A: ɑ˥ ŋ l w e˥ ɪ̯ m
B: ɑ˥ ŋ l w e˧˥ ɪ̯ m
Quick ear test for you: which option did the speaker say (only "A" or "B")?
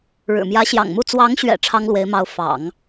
B